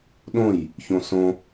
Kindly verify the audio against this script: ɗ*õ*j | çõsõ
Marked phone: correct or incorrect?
correct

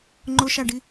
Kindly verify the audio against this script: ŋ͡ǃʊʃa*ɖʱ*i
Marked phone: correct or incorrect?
incorrect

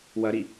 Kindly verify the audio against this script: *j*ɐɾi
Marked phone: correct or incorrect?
incorrect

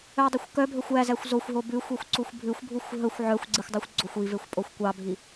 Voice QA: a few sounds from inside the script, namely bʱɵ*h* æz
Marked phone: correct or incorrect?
incorrect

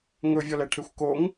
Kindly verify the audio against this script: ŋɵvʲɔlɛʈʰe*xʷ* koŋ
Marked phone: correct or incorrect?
correct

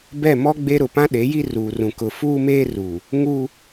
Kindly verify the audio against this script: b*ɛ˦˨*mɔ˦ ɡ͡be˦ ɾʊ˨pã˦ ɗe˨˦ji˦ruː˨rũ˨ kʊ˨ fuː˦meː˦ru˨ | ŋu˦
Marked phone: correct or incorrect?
correct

